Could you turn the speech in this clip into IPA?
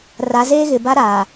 ra˨˦zeː˦ɣɪ˨ ba˦ ɾaː˨

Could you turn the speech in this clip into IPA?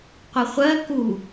qʷəχʷɜ ku

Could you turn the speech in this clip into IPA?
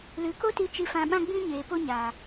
lɨ˨˦ko˦ti˧ t͡ʃi˧fã˧ɓã˦ɡ͡bĩ˦ ɲeː˨po˧ ɲaː˨

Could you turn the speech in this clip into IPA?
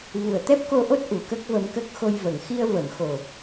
vu˨˩ə̯t̪ɛ˦˥p̚ko˧ʔo˦˥t̚ ʔu˨˩kə˦˥k̚və˧mkə˦˥k̚ xo˧jvə˨˩˨ŋ xi˧ə̯və˨˩˨mxo˨˩

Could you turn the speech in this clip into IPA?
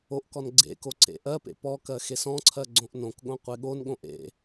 oʔkɔn ɡ͡ǀḛko ǀḛʔɜpḛ pɔkɜ xesɔ̃ǀʰɜ ɡ͡ǀõʔnõkɠõ qʷeɠonɠõʔ ḛ

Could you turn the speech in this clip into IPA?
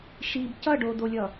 ʃib cʌɖodolʲʌ

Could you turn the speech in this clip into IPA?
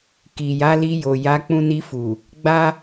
ki˨ja˨˦li˧jo˨ ja˨˦k͡pũ˧ni˧fu˨ | ɡ͡ba˦

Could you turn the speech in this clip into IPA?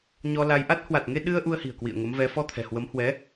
ɲɔ˧la˧j ʔa˦˥t̚ hwa˨˩t̚ŋe˧ ɗɨ˧ə̯ ʔu˧ə̯hi̤˨˩ə̯kwḭ˧˨ə̯ ŋə˨˦mvɛ˨˦ fɔ˧t̪ʰɛ̤˨˩hwə˨˦m hwɛ˨˦

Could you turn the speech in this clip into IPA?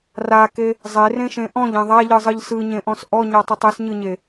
rake | zˤerẽʃẽ ʔɔ̃ʎẽ ðˤaʎɯzˤɯʎ sɯɲẽʔɔ̃s ʔɔɲɔtˤɯtˤ esɲɯɲe

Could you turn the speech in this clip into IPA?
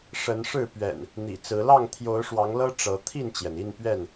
ʂə˨˦nʂɻ̩˥˨pɥɛ̰˨˩n | n̪ḭ˨˩t͡sɹ̩˨˦ lɑ˥˨ŋt̪ʰjo˨˦ʊ̯ʂwɑ˨˦ŋlɤ˦ ʈ͡ʂɤ˨˦ t̪ʰi˥˨nt͡ɕjɛ˩ni˥˨n pɥɛ˥˨n

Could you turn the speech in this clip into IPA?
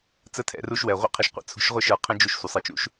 t͡sə˦tʰɛ̰˧ ru˧ʃwɛ˨ʁʷə̰˦ qʰɪ˧ʃqʷə̰˦t͡sʰṳ˧ʃʁʷɪ˦ ʃə˞˧qʰə̃˦ d͡ʒu˧ʃsʷə˨sˤə˨˦t͡ʃṵ˦ʃ

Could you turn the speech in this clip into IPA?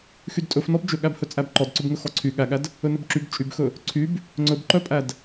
xydtʼɵfnɔb d͡ʒɵɠæbhɵ t͡sʼæbǃɔdǀɵbŋɵ xɔǀʰy ɠæɠæd | ɵnɵbǁyb t͡ʃʼybxɵ | ǀʰyb | ŋ͡ǀɵbǃœpʼæd

